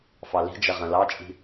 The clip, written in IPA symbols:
f ɑ l i̤ d͡ʒ ɐ ʁ ɐ̃ l ɑ t͡ʃʼ i̤

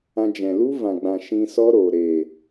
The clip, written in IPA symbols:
ã˧ d͡ʒ ɛ̃˨ l u˦ v ã˨ ɡ͡b ã˨ ʃ ĩ˧ s ɔ˦ ɾ oː˨ ɾ e˨

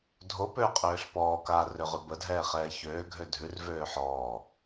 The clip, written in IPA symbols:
dʱ o p øː qʼ øː ɬ p ɔː k aː r ø ʁ ʉ b ə dʱ ɛː χ ɛː ç øː ɡʱ ø dʱ ʉ r v øː ħ ɔː

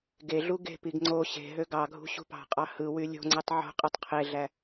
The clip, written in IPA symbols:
ɡ e ɮ u ɡ e̤ p i ɡ ŋ͡ǀ o ɕ e̤ ɦ ø ɡ ɑ ɡʱ ṳ ɕ ṳ p ɑ̤ qʼ ɑ h ɯ w y lʲ o̤ ŋ͡ǀ ɯ tˤ ʕ o̤ qʼ e tˤ qʰ e ɮ æ

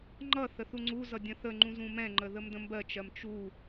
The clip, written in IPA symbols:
ŋ͡ǃ ʌ θ ə θ u ŋ͡ǀ u z ʌ dʲ ə̃ θ ə ŋ͡ǃ ũ z ũ m ɛ̃ ŋ͡ǃ ə ð ə m d ə̃ m b ɜ t͡ʃ ɜ m t͡ʃ u

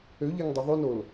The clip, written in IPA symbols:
ø ʎ ɛ ŋ dˤ ø ðˤ o n o l

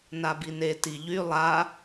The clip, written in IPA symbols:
n a b i n e t i ʎ y lˠ a

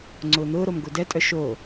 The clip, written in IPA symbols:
ŋ͡ǀ ʊː n̪ ʊː ɾ o m ɡ o d ɛ tʼ œ ʃ o

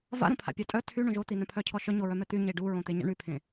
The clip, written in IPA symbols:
v a̰ ɾ õ pʰ a̰ pʲ a tʼ œ tʰ y ɳ õ ʒ o t̪ i n œ̃ pʰ œ cʰ ɔ ʃ œ ɲ o ɹ œ m ɛ t̪ y ɲ e ɖ u ɹ õ t̪ e ɲ a̰ ɳ y pʰ ẽ

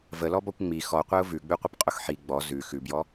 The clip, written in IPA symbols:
v ə l ɔ b ɔ kʷ ŋ͡m i x ɔ qʷ æ ʊ̯ v ʉ ɡ͡b ʉ qʷ ə p qʼ ʊ x ħ i ɡ͡b ɔ z ʉ x ʉ b j ɔ

